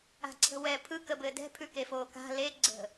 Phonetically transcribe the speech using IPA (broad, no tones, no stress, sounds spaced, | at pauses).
a̤ ǀʰ ə̤ w ɛː pʰ ɯ k ə b ɘː d ɛ̤ pʰ ʉ k e f oː k a̤ l e ɡ͡ǀ ə̤